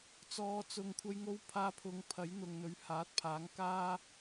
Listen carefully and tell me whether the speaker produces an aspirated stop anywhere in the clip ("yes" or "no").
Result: yes